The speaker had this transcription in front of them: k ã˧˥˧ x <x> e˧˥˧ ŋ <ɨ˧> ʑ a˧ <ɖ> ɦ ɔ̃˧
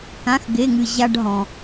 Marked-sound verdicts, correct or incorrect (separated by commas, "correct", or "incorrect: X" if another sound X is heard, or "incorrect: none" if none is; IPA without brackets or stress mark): incorrect: ɡ, correct, correct